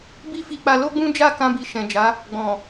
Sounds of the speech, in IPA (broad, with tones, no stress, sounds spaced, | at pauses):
b i˦ f i˧ k͡p a˧ l o˦ ɡ͡b ũ˦ d͡ʒ a˦˨ k ã˧ b i˨ ʃ ɛ̃˨ d͡ʒ a˨˦ | ɡ͡b ɔ̃˨